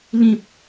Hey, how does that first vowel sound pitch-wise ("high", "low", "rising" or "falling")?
low